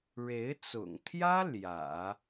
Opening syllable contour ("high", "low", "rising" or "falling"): rising